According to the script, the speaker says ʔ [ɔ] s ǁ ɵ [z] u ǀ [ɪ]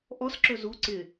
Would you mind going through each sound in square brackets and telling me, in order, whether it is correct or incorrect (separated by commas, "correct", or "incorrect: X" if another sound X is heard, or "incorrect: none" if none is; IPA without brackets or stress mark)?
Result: correct, correct, correct